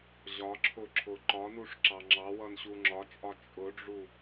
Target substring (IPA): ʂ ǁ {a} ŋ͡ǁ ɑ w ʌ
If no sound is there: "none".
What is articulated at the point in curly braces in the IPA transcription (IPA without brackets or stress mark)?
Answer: ɑ